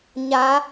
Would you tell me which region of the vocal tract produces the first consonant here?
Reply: palate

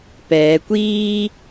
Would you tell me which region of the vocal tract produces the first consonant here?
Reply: lips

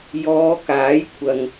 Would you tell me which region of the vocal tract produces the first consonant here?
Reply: palate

